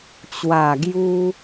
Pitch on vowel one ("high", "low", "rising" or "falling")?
low